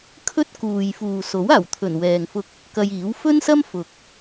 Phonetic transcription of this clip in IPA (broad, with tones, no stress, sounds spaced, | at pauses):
kʰ ɵ˥ t̚ k uː˨ j f uː˨ s o˨˥ w aː˨˩ w t̪ʰ ɵ˨˩ n w ɛː˨ ŋ f ʊ˧ k̚ | k ɐ˧ j iː˨˥ w f ɵ˥ n s ɐ˥ m f ʊ˨ k̚